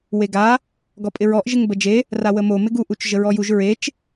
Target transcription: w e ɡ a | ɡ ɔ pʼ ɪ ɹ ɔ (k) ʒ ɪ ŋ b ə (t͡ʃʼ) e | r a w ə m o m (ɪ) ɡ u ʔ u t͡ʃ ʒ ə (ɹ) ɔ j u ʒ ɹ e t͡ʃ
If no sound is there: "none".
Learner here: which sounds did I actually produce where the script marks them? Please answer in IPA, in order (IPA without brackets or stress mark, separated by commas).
ʔ, d͡ʒ, ɪ, ɹ